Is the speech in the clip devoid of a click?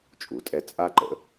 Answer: no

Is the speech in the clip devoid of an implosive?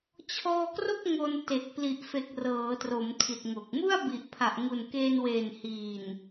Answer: yes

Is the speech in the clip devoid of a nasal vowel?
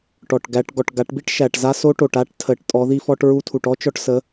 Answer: yes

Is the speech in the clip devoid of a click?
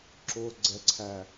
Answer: no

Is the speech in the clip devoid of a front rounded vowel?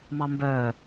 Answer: no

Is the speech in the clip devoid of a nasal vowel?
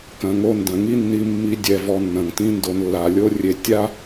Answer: no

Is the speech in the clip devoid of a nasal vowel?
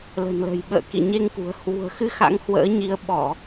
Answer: yes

